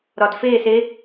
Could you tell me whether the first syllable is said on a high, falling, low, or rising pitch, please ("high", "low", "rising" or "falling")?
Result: low